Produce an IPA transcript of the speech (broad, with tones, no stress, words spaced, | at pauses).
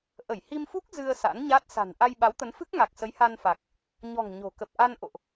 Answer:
ʔə˧˩jhi˧mfu˦˥k̚ zɨ˧ə̯ sa̰˧˥nɲa˦˥t̚ sa̤˨˩nʔa˧j ɓa˨˦wt̪ə˨˦nfɨ˦˥k̚ ŋa˨˩k̚sə˨˦j ha˧nfa˨˩k̚ | ɲɔ̤˨˩ŋ ɲo̤˨˩kə˨˩p̚ ʔa˧n ʔo̰˧˨ʔ